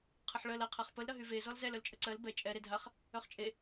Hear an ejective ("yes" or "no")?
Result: yes